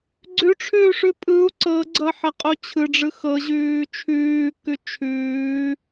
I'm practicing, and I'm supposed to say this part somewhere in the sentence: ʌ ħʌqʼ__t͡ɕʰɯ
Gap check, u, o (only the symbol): o